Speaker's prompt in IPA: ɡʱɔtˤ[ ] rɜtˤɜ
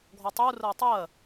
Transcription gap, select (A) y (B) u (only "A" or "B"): B